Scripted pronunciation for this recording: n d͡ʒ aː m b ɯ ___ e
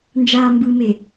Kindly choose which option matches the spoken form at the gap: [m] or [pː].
m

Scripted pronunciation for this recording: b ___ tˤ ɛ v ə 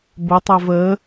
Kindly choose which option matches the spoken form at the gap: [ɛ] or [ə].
ə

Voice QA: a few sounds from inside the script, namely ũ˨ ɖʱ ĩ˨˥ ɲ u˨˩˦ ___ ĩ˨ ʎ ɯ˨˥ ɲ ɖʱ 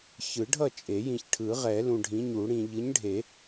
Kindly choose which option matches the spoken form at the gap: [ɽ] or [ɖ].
ɽ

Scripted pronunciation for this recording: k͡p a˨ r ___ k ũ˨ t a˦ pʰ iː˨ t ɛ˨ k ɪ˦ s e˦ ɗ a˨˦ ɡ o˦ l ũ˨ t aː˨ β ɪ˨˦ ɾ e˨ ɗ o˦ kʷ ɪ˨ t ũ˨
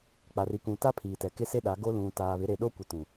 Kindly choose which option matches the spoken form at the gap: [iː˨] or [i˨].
i˨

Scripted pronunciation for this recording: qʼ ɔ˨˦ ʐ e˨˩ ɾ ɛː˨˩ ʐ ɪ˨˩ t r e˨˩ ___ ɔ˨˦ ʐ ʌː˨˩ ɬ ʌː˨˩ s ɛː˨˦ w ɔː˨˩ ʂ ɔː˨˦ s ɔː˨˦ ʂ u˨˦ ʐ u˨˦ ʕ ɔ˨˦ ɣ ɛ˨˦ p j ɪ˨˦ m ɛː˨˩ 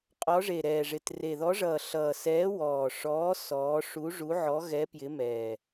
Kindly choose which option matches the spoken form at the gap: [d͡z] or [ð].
ð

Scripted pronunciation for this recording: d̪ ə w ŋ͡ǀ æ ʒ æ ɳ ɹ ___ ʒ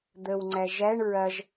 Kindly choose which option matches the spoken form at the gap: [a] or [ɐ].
ɐ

